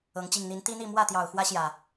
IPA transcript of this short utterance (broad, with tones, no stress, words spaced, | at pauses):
ɤ˨˦ŋ t͡ɕi˨˩ŋn̪i˨˦nt̪i˦n̪i˥˨ mwä˥˨t̪jɑ˨˩ʊ̯ xwä˦ɕjä˨˩